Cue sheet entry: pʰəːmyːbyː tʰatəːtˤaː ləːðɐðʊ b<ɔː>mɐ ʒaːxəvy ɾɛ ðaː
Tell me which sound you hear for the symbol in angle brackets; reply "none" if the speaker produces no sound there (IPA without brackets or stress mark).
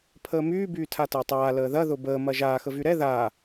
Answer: əː